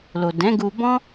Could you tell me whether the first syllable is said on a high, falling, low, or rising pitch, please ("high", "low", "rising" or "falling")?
low